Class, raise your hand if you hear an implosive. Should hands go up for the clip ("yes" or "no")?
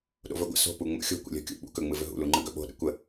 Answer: yes